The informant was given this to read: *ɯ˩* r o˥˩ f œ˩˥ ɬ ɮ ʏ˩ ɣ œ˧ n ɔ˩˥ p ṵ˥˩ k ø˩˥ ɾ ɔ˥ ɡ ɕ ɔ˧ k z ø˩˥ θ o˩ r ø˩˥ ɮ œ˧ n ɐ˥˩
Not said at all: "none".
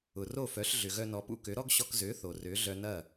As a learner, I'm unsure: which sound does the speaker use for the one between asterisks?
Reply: ʊ˩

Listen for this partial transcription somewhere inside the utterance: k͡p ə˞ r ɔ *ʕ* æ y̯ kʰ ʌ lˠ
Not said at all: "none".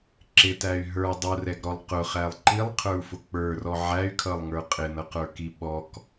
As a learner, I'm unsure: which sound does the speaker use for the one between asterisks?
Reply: ʕ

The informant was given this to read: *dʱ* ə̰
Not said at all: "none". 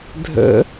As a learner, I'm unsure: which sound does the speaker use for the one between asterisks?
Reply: dʱ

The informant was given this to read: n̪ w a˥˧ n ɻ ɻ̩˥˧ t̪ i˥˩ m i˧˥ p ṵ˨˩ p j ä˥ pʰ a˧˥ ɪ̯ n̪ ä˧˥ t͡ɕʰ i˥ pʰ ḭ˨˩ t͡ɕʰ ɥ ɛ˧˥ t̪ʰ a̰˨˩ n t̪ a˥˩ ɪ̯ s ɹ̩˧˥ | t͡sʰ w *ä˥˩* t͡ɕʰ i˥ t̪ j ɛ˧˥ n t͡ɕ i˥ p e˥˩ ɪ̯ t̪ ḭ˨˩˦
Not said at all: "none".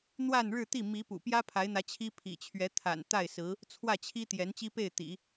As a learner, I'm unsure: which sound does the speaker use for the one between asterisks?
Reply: ä˥˩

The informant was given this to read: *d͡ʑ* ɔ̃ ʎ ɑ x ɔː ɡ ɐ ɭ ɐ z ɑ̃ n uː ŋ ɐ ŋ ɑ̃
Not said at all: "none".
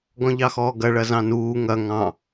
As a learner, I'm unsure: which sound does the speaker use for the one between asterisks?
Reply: ɡ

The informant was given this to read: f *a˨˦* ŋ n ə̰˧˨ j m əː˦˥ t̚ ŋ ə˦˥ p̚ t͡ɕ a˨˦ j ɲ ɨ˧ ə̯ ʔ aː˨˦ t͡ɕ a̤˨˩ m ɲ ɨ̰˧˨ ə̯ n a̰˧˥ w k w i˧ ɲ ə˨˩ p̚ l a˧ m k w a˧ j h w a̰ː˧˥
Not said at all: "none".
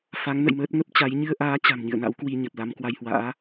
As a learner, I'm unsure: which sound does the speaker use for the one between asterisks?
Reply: a˨˦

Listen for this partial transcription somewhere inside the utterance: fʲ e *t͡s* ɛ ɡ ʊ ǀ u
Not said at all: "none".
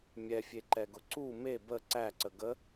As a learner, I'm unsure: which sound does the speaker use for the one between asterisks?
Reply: ǃ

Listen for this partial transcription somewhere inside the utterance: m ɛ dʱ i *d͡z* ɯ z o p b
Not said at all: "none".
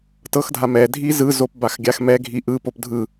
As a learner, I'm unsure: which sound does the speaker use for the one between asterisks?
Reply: z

